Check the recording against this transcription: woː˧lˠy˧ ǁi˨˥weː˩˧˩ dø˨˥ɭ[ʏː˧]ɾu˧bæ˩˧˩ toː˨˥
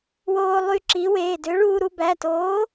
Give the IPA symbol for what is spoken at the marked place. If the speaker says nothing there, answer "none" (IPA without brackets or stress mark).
uː˧